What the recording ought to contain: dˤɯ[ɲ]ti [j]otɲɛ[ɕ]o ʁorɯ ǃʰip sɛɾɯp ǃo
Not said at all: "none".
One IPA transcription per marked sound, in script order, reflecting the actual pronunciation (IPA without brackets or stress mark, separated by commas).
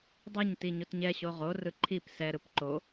ɲ, ɲ, ɕ